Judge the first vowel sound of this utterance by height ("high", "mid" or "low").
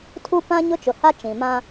high